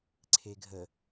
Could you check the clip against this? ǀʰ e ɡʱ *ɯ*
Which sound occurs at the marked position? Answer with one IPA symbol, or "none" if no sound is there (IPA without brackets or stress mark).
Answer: ə